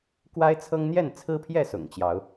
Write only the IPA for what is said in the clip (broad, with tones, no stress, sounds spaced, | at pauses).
k w a˦ ɪ̯ t͡sʰ ɤ˦ ŋ n̪ j ɛ˥˨ n t͡sʰ ɹ̩˦ pʰ j ɛ˥˨ s ʊ̰˨˩ ŋ t͡ɕ j ɑ˨˦ ʊ̯